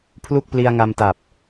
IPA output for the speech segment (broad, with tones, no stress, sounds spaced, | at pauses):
pʰ l u˥˩ k̚ p l i˧ a̯ ŋ a˧ m t a˨˩ p̚